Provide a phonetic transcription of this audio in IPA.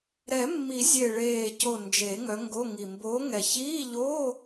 ɾ ɛ˨˩˦ mː i˨˩˦ zʲ e˨˩ ɭ eː˨˩ c o˨˩ n d͡ʒ e˨˩˦ ŋ œ˨˦ ŋ ɡ o˧˥˧ ŋ i˨˩ m b oː˨˦ ŋ ɛ˨˩ ç iː˧˥˧ ʎ o˧˥˧

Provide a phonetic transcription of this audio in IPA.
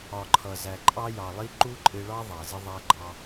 ɒ˨ ǃʰ ʌ˨ z æ˨ ǃʼ ɑ˧ j ɑ˨ lˠ i˧ ǃ u˦ ǃʼ ɪ˧ ɭ ɑ˦ ðˤ æ˨ z ɪ˧ ðˤ æ˧ ɡ͡ǃ ɑ˧

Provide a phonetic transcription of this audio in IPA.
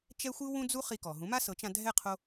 t͡ʃ ɛ˥ xʷ ɯ˥ w ũ˥ d͡z u˥ χ i˧ k ɔ˩ ɦ ũ˩˥ m a˥ s ɤ˩˥ t͡ʃ ã˧ dʱ ɛ˥˩ qʰ o˧

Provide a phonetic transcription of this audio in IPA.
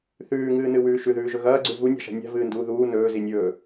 θ ʉː ŋ ɨː n ɨ w ʉː ʃ ʉ ð ʉː ʒ ɵ ɣ ɐː ɡ͡ǀ ʉ v u nʲ a̤ ʃ a̤ nʲ a̤ v ɨː n d uː ð uː n ɵː z i nʲ ɵː

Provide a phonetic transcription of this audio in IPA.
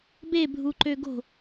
b e bʱ u ǃ ø ɡ o̤

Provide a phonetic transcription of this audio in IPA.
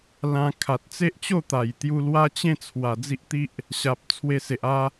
l ã˧ kʰ a˨ t̚ t͡s e˦ ʔ t͡ɕ o˥˧ t̪ a˨˩ j t̪ j u˧ l w a˦ t͡ɕ ẽ˥˧ t͡sʰ w a˨˩ d͡z i˦ ʔ t̪ i˦ ʔ | ɕ a˨ p̚ t͡sʰ w e˧ s e˨ ʔ a˦

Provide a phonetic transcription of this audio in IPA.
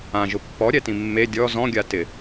ã ʒ ʊ pː ɔ ɾʲ ɛ t ĩ mː e dʲ ɔ z ɔ̃ ɡʲ a t ɪ

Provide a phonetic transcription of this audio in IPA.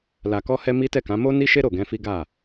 l a˨ k ɔ˧ h ɛ˧ m i˦ t ɛ˦˨ k ã˨˦ m o˦ n i˦ ʃ e˦ ɾ o˦˨ ɡ ɛ̃˧ f i˦ ɡ a˦˨

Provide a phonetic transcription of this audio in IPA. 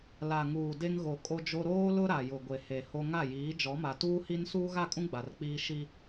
l a˨ ŋ uː˨ d e˦ ŋ ɣ o˨ kʼ o˦ d͡ʒ o˦ ɾ oː˦ l ʊ˦ ɾ a˨ j ʊ˨ ɡʷ e˨ h e˨ h o˦ ŋ a˦˨ j iː˨˦ d͡ʒ ɔ˨˦ m a˨ t uː˦ h i˦ n s uː˦ ɣ a˦˨ kʼ ũ˦ ɡ͡b a˨ r k͡p iː˦ ʃ i˦

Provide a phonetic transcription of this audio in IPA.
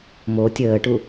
m o tʲ əː ʈ u

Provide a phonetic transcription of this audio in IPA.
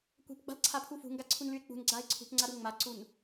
kʷ ɛ̤ p ɡ͡b a̤ l ǀʰ a pʰ u f ṳ ŋ ɡ a ǀʰ u n l y e̯ k͡p ṳ n ɡ͡ǀ a e̯ ǀʰ ṳ p ŋ͡ǀ a ɾ u ŋ͡m a ǀ u n

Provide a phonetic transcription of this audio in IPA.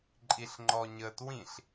ǃʼ i ɬ ŋ͡ǃ ɔ ɲ ə t w ĩ ɬ

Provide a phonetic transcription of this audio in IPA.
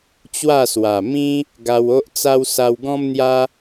t͡ɕ w a˥˧ s w a˨˩ m ĩ˦ | ɡ a˧ w o˦ ʔ t͡s a˦ w s a˧ w ɡ ɔ̃˦ m n̪ j a˦

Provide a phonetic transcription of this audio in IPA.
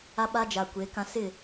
a˦ ɓ a˦ d͡ʒ a˨ kʷ e˨˦ k ã˦ s ɪ˦˨

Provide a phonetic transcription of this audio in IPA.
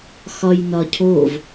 x ɒ j n ɒ cʰ o v

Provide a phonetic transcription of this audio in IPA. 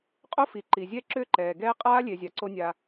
qʼ o˦ f i˨ ǃ i˨ zʲ ɛ˦ ǁ ʏː˦ ǃ ɛː˨ ɡ ɛː˦ qʼ aː˦ lʲ e˨ zʲ a˨ ǀ o˦ nʲ a˧

